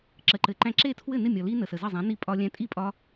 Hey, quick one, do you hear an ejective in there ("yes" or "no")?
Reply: yes